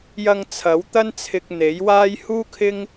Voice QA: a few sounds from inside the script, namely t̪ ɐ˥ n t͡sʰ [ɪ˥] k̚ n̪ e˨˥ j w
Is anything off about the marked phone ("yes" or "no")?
yes